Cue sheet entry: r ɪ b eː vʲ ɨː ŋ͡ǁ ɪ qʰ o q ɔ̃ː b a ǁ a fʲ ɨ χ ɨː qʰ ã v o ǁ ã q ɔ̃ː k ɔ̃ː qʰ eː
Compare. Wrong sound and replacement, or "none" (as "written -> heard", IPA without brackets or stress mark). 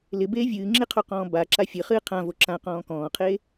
r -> l